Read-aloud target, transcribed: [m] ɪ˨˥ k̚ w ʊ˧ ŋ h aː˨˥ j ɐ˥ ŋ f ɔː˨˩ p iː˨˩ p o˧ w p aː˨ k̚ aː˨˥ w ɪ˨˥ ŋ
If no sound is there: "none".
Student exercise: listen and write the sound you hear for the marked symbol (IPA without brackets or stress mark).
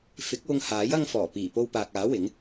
f